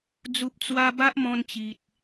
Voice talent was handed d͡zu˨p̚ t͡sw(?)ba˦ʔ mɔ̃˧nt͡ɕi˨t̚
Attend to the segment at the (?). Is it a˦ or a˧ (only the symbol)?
a˧